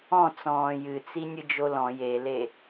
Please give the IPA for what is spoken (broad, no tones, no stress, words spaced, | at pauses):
ɔ̃ t͡sɔ̃ːjɨt͡si nʲɨd͡ʒolɔ̃ jele